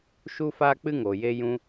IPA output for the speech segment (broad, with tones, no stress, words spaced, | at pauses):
ʃu˦faː˦k͡pɨ˦ŋoː˨ je˧jũ˧